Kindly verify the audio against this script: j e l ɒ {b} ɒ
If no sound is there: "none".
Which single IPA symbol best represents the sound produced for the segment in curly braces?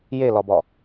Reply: b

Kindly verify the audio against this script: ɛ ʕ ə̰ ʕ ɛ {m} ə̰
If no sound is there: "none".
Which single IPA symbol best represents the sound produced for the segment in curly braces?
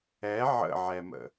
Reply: m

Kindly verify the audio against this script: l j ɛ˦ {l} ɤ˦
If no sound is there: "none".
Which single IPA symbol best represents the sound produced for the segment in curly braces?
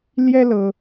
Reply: l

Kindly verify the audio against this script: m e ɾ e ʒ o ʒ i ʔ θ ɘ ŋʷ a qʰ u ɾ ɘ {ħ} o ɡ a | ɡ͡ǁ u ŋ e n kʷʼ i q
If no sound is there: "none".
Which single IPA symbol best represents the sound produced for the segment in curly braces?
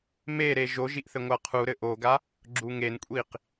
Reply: ʔ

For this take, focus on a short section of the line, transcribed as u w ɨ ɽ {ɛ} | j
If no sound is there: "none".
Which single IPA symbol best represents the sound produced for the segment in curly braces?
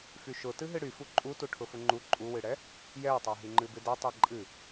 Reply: ɛ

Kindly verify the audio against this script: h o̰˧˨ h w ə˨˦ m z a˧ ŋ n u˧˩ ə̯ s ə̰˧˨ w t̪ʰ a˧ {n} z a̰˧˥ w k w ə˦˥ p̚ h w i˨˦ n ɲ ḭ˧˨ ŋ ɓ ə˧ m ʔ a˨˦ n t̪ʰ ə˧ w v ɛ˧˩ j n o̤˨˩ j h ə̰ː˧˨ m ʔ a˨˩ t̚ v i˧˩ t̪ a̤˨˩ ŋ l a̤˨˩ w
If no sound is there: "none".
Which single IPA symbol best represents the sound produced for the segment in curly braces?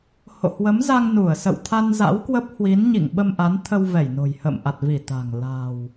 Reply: n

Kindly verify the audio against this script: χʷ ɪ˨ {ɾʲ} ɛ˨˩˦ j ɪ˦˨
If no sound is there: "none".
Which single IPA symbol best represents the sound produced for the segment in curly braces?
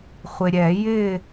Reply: ɾʲ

